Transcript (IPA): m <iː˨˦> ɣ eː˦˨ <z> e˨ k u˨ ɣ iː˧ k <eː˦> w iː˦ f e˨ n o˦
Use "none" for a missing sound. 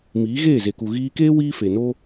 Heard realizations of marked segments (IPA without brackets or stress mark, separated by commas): iː˨˦, z, eː˦